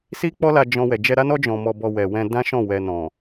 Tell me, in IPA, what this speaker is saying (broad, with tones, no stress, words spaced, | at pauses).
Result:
si˦k͡pɔ˦la˧ d͡ʒɔ̃˧ wɛ˨d͡ʒɛ˧ɾa˦nɔ˦ d͡ʒɔ̃˧mɔ˧ bɔ˧wɛ˨ wɛ̃˧dã˦ʃɔ̃˦˨ wɛ˧nɔ̃˨